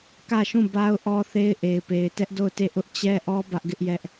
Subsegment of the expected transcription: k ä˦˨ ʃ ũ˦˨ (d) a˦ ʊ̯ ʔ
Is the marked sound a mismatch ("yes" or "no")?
yes